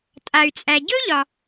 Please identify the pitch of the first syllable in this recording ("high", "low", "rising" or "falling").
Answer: low